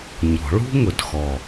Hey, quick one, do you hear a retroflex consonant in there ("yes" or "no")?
yes